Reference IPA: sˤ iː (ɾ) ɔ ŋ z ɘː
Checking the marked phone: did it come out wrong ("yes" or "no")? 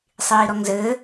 no